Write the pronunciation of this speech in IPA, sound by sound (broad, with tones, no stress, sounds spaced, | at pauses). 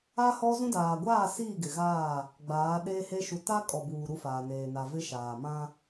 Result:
a˦ h ɔ˦ z ũ˦ d aː˨ ɡʷ aː˦˨ s iː˦˨ ɡ ɪ˨ ɣ aː˦˨ | ɡ͡b aː˨˦ ɗ eː˦ h e˦ ʃ u˨ t a˦ kʼ ɔ˨ b uː˨ ɾ u˦ f aː˨ n eː˨ n a˨ v ɪ˦ ʃ aː˨ m ã˦